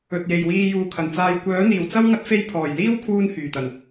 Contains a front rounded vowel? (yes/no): yes